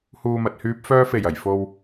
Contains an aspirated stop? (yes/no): no